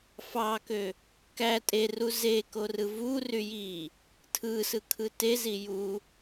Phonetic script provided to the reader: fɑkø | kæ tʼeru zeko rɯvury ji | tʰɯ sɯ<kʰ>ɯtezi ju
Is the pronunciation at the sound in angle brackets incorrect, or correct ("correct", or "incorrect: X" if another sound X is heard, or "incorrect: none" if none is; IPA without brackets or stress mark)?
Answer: correct